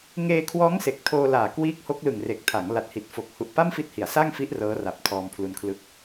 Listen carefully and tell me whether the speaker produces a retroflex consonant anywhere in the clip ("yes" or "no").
no